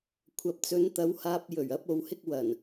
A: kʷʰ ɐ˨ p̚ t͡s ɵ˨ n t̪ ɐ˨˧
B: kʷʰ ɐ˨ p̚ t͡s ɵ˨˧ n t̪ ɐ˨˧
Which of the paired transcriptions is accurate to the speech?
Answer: B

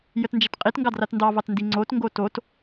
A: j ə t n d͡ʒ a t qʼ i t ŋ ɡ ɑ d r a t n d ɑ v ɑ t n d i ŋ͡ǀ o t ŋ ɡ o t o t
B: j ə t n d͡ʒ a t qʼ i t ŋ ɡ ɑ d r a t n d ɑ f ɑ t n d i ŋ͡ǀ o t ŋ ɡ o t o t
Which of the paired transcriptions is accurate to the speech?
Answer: A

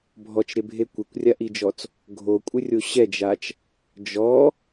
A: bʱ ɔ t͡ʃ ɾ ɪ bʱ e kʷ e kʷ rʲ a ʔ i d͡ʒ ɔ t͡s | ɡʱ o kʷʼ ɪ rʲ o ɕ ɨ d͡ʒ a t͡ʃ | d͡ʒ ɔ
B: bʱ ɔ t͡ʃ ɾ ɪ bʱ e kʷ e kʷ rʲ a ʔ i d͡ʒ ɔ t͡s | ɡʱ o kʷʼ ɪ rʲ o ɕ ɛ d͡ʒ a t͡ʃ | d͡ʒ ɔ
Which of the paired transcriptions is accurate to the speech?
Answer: B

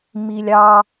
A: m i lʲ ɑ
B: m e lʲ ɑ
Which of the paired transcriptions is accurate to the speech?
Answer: A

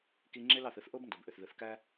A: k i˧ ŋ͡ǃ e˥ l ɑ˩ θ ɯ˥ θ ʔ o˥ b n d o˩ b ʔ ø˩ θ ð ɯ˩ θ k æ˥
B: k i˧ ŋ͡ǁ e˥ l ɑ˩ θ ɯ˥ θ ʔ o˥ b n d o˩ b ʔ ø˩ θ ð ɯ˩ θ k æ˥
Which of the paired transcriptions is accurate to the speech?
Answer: B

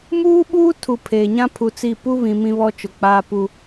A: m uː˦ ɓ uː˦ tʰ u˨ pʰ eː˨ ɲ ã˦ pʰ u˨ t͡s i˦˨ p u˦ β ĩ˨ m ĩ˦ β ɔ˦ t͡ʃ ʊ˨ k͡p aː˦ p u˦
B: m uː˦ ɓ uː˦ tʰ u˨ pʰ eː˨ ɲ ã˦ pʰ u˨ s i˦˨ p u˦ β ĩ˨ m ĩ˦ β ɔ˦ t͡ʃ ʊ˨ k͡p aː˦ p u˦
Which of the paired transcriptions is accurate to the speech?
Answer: A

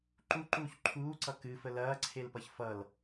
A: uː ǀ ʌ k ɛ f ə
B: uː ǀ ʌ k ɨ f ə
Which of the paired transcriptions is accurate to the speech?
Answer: B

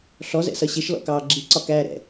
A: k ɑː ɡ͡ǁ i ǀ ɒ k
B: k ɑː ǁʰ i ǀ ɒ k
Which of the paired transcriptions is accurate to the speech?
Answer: A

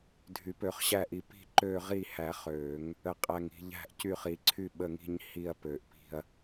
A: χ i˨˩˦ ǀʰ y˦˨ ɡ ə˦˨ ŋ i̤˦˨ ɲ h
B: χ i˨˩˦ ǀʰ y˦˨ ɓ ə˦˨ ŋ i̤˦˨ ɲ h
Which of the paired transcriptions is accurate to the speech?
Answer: B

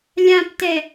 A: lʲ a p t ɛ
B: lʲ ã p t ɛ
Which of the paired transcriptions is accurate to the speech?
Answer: B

